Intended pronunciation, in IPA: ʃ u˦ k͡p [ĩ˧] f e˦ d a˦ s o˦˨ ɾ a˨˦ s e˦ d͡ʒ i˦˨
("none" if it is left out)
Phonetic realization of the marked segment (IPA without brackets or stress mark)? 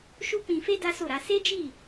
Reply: ĩ˧